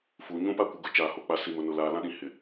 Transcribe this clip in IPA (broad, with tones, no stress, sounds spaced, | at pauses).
f uː˨ ɲ ũ˦ p a˦ kʷ ɪ˨ ɡ ʊ˨ t͡ʃ aː˨ h o˨ k͡p a˨ s i˨ m ʊ˨ n ʊ˨ l aː˨ l ã˦ ɗ ĩ˨ h ɪ˨